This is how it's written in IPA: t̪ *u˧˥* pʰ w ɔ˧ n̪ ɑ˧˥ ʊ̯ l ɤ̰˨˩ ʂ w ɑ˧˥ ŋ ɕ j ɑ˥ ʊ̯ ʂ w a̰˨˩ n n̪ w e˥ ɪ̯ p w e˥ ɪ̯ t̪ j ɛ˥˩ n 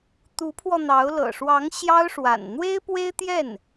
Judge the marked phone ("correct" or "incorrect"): correct